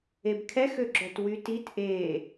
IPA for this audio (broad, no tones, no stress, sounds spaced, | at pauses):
e b kʰ ɛ x ø ɡ͡ǁ œ t w y t i t ʔ e